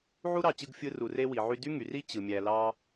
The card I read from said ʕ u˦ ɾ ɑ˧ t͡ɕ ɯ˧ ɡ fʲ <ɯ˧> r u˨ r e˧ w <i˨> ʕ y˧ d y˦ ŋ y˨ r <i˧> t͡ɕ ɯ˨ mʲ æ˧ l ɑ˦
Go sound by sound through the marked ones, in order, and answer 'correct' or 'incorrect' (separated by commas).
correct, correct, incorrect